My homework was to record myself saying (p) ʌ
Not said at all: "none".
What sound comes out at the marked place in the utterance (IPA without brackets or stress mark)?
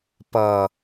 p